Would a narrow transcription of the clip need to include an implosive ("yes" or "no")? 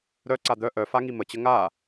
no